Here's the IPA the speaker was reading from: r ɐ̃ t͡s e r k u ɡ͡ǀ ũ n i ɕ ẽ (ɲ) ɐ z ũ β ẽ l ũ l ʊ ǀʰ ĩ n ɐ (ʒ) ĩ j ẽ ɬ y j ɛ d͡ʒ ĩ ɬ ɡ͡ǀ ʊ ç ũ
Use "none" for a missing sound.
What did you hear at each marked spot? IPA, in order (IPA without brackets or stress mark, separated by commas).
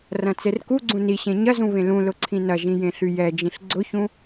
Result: ɲ, ʒ